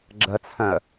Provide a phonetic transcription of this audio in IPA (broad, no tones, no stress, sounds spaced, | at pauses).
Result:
ɡ͡ǁ ə t͡sʰ œ̃ ə̯